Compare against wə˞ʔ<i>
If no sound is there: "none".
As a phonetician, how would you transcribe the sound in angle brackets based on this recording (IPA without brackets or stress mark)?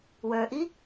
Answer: i